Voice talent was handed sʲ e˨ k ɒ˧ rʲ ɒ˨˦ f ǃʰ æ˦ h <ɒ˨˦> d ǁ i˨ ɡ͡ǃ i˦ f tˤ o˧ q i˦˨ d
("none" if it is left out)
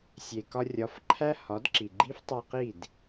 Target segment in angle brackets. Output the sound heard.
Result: ɒ˨˦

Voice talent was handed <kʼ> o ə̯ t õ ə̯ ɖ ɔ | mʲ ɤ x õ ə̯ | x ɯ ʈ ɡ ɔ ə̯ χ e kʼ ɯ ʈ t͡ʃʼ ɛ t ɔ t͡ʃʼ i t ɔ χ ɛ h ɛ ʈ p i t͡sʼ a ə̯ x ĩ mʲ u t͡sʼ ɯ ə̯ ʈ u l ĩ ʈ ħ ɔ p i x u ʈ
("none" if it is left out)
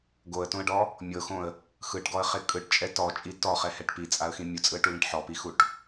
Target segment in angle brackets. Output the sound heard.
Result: ɡ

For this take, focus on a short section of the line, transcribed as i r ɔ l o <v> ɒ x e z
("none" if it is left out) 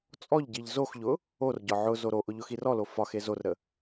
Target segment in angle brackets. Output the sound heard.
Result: f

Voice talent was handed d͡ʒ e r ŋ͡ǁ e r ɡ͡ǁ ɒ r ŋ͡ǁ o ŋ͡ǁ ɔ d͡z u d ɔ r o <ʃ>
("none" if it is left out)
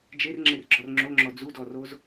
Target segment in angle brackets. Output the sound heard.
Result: z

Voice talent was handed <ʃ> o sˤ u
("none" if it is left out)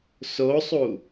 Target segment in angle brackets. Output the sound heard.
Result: s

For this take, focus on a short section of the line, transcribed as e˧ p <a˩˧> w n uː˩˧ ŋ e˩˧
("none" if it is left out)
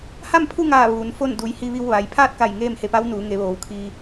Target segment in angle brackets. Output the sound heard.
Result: a˧˥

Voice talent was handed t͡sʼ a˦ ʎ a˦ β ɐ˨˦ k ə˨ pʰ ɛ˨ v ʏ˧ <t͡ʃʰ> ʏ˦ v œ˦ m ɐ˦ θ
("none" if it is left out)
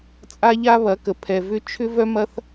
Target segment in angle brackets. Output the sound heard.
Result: t͡ʃʰ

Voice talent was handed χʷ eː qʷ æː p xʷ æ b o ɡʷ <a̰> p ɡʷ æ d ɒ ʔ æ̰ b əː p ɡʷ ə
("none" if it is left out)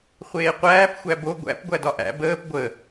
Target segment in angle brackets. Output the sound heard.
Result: æ̰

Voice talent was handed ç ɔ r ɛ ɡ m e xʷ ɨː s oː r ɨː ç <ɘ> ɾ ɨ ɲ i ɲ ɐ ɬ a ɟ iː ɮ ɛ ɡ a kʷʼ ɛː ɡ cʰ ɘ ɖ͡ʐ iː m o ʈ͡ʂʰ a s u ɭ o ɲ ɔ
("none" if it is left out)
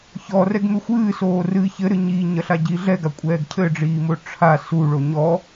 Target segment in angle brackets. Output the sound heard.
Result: ɘ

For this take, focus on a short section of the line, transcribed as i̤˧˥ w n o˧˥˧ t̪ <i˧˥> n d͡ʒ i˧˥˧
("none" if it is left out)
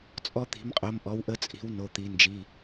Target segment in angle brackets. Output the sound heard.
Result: i˧˥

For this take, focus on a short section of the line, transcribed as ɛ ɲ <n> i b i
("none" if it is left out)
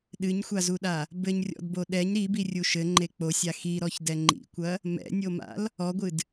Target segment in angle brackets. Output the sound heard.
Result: ɾ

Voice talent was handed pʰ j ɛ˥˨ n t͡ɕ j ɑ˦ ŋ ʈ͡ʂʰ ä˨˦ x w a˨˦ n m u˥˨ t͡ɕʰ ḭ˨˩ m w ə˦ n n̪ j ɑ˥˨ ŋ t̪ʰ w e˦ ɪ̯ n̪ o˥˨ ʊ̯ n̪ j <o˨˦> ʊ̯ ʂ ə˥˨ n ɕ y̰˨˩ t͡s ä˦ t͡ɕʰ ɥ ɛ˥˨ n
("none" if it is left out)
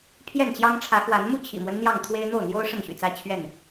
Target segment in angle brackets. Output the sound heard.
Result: o˦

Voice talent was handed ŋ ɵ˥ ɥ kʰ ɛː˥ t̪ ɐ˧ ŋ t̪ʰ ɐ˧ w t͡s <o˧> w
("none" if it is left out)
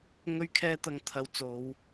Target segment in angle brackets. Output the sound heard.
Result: o˨˧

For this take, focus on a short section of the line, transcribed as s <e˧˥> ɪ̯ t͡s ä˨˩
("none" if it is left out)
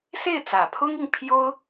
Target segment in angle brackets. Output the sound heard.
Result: e˥˩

